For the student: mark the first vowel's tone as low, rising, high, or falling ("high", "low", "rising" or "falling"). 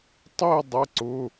falling